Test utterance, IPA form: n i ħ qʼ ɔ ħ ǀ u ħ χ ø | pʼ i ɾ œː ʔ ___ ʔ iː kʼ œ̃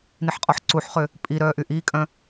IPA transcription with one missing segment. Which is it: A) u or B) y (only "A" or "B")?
B